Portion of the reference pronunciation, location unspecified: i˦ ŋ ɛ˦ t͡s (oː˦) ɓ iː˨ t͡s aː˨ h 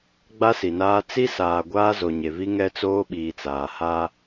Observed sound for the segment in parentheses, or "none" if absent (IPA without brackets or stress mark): oː˦